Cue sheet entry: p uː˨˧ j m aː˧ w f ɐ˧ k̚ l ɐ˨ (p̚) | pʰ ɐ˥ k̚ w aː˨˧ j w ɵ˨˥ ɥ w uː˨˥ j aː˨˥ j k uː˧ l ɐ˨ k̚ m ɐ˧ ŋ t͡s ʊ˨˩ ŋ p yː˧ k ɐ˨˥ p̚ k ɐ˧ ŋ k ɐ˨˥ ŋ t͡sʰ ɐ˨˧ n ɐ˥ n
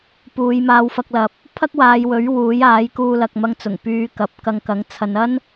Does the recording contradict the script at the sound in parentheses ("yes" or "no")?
no